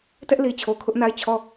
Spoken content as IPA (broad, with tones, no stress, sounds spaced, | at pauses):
t ɛ˦ ʔ l i˨ t͡ɕʰ o˨ kʰ ʊ˦ ʔ n a˦ ɪ̯ t͡ɕʰ ɔ˦˨